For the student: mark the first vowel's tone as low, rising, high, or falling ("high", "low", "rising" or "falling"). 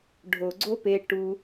low